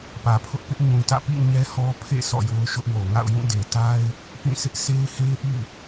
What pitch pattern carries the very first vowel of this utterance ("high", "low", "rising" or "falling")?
low